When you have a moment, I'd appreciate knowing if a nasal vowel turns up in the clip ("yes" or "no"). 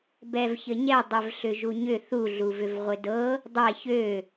no